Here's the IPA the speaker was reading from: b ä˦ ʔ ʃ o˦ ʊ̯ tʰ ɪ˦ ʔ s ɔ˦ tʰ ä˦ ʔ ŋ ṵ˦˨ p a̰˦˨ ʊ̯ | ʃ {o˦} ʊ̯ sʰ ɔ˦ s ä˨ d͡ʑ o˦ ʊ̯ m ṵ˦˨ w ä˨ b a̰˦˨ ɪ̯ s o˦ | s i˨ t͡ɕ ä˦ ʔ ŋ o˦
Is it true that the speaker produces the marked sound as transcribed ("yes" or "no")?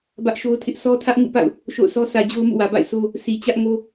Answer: no